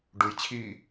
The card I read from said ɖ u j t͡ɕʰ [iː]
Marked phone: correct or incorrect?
correct